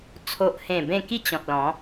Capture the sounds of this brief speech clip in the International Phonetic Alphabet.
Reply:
t͡sʰ o˨ ʔ h ẽ˨˩ b ẽ˥˧ k i˥˧ t͡ɕ ɔ̃˨ t̚ l ɔ̃˨˦

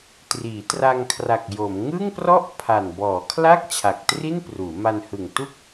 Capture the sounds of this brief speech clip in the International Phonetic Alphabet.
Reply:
t r iː˩˦ t r a˧ ŋ kʰ r a˨˩ k̚ j o˩˦ m ŋ ɯ˥˩ ŋ p r ɔ˥˩ ʔ pʰ a˨˩ n b ɔː˩˦ kʰ l a˥˩ k̚ t͡ɕʰ a˨˩ k̚ t r i˥˩ n p r uː˩˦ m a˧ n h ɯ˨˩ ŋ t u˥˩ k̚

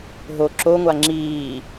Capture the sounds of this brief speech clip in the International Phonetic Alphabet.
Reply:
ɦ o ǁ o ŋʷ a ŋ͡ǁ iː

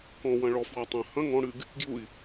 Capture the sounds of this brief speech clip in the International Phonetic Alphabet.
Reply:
k ɔ̃ w ɐ̃ ɭ ɔ f w a tˤ ɐ̃ h ɐ̃ ŋ ɔ̃ ɽ ɨ ɡ | ɡ j u i̯

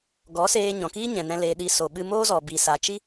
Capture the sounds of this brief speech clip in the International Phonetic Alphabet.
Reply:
ɡ ɔ˨˦ s eː˧ ɲ ɔ̃˨ k iː˦ ɲ ɛ̃˨ n ɛ̃˧ l eː˧ ɗ i˨ s o˨ ɓ ɨ˧ m oː˦ z ɔ˨ b i˨ s a˨ t͡ʃ i˦

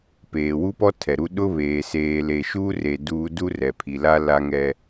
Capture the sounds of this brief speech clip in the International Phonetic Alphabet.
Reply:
p eː˨ w u˦ p ɔ˦ tʰ ɛ˨ ɾ u˦ ɗ ʊ˦ β eː˨ s eː˨ l e˨ ʃ uː˦ r e˨ d uː˦ d u˦ r ɛ˨ pʰ i˨ l a˦ l a˦ ŋ ɛ˦

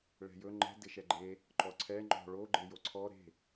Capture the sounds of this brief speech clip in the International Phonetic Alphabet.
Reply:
ɭ ɛ̤ j ɵ ŋ͡ǃ ɛ̤ d ɪ ʃ ɛ ɡ͡ǃ e | ǃ ɔ ǀʰ ɛ ŋ͡ǃ ɔ̤ ɭ o ɡ͡ǃ e j o ǀʰ ɔ ɾ e̤

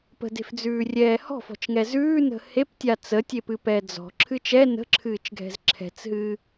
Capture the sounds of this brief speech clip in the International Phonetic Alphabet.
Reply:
p ə̤ d e̤ f d͡z ʉː rʲ ɛː h ɔ̤ f ɔ̤ t͡ʃ ŋ ɛ z ʉː n ə̤ h e p tʲ a t͡s ə tʲ e p ɨ p ɛː d͡z ɔ̤ ǁʰ ɨ t͡ʃ ɛ n ə̤ ǁʰ ɨː t͡ʃ ɡʱ ɛ̤ z ǁʰ ɛ̤ t͡s ɦ ɨ

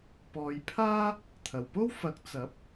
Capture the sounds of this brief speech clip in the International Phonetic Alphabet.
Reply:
p ɔː˨ j pʰ aː˥ | t̪ʰ ɐ˨˩ w p o˥ w f ɐ˨˥ k̚ t͡s ɐ˨˥ p̚

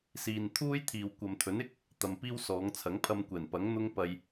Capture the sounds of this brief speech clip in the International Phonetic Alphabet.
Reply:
s iː˨ n t̪ʰ uː˥ j t̪ʰ iː˨ w kʷ ɐ˨ m t̪ʰ ɵ˨˥ n ɪ˥ k̚ | t̪ ɐ˨ m p iː˥ w s ɔː˨˧ ŋ t͡sʰ ɐ˨˥ ŋ pʰ ɐ˧ m kʷ ɛː˨˩ n p ɐ˨˥ ŋ n̪ ʊ˥ ŋ p ɐ˧ j

